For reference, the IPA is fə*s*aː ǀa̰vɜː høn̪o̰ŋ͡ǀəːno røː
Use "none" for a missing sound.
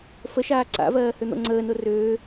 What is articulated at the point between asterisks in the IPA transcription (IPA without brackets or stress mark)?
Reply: ʃ